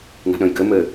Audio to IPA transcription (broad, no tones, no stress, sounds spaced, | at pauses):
n a̤ ɗ ə̃ j ɡ ɘ m ɘ